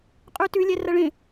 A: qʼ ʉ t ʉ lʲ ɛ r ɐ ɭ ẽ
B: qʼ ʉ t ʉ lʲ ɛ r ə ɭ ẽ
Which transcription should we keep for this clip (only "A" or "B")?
A